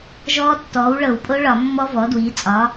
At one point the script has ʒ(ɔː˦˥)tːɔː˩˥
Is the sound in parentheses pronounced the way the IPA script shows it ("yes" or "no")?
yes